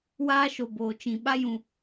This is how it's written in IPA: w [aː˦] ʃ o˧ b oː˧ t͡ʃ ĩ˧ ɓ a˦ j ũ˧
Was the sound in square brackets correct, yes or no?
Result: yes